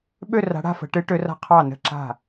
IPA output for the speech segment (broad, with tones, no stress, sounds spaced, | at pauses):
ɓ ø˧˩ r a̤˩˧ ɽ a̤˥˩ f ə̤˩˧ ʈ ɨ˩˧ ʈ ø˩˧ r a̤˧˩ qʰ ɑ˧˩ n ə̤˧˩ ǁ a̤˧˩